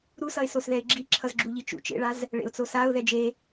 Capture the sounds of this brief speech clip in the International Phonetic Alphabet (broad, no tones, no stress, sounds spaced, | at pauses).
ɾ u s ʌ ɪ̯ s o s ð ɛ ɪ̯ ɡ͡ǁ i ǁʰ ʌ z ɡ͡ǁ u ʎ i t͡ʃ ṵ t͡ʃ ḛ ɭ a z | ɭ ḛ ʊ̯ t͡s o s a ʊ̯ ð ɛ d͡ʒ e